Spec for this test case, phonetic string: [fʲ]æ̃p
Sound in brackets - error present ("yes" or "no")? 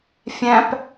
no